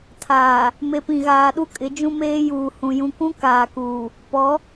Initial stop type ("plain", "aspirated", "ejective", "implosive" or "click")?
aspirated